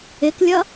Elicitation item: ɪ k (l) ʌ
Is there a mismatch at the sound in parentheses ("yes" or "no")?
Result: yes